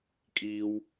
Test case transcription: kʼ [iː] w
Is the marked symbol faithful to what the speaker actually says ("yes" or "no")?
yes